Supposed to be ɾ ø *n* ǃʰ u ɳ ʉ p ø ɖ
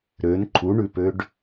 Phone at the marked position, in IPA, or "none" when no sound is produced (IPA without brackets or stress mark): n